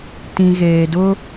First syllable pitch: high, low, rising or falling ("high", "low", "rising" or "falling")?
low